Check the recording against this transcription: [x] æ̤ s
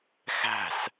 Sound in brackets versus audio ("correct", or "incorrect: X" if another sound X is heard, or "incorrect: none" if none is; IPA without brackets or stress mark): correct